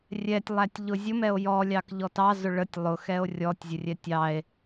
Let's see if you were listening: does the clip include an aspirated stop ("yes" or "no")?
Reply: no